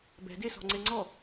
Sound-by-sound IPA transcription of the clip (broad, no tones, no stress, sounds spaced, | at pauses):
b ɛ̤ d e s ɔ̤ ŋ͡ǀ e ŋ͡ǀ ɔ